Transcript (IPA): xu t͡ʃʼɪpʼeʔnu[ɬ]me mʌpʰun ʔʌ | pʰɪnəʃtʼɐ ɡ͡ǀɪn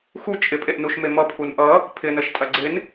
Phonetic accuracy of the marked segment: incorrect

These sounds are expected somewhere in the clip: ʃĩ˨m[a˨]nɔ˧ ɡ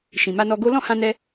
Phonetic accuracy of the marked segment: incorrect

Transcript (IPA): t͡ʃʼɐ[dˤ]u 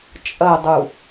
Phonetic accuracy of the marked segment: correct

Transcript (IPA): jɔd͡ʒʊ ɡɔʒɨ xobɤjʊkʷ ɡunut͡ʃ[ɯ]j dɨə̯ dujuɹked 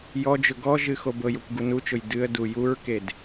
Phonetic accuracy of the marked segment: incorrect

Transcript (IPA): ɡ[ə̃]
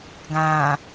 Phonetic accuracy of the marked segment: incorrect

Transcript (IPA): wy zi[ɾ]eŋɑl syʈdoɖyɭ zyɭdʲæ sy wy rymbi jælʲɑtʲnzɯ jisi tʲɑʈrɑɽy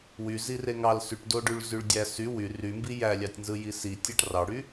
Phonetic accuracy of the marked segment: incorrect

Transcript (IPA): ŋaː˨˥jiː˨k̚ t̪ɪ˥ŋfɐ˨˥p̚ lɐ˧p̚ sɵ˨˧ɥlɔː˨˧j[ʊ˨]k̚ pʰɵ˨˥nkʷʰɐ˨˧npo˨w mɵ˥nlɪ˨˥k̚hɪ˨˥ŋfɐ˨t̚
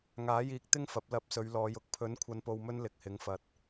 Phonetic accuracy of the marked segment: correct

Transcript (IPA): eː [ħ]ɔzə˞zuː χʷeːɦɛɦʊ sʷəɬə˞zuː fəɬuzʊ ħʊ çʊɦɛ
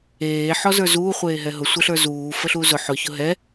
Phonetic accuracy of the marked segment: correct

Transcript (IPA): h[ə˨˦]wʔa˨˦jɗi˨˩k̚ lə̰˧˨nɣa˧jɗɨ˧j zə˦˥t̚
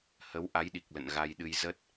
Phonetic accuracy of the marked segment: correct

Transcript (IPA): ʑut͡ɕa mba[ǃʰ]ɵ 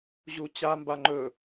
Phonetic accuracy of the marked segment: incorrect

